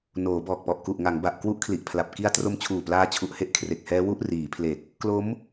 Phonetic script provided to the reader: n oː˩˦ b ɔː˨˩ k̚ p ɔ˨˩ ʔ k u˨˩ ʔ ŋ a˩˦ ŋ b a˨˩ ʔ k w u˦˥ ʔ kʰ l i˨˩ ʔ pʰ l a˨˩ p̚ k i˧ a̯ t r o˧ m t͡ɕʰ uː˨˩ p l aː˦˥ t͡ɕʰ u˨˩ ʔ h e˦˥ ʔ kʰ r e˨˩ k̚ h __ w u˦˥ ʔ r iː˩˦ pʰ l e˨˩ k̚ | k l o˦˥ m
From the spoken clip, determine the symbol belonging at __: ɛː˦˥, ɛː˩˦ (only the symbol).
ɛː˦˥